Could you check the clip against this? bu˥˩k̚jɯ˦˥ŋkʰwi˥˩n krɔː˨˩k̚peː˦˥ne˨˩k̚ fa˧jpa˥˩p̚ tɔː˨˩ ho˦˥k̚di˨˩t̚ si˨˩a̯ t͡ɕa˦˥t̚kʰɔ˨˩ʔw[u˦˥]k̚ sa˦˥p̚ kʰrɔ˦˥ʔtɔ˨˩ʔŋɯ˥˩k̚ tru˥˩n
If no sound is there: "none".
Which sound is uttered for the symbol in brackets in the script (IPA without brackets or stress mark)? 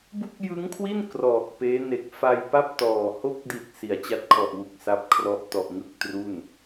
u˨˩